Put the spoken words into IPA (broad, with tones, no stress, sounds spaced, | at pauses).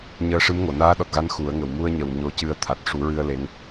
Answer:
ɲ əː˧ ʂ ɨ˧˥ m ŋ o˨˩˨ n aː˧˥ ɗ ɔ˨˩ t̚ ɣ a˧˥ n x u˨˩˦ ə̯ ŋ ə˨˩˨ w m u˧ ə̯ ɲ ə˨˩ w ɲ o˧˥ c ɨ˧ ə̯ t̪ʰ a˨˩ t̚ ʂ u˨˩˦ ɹ ɨ˧ ə̯ l e˧˥ ŋ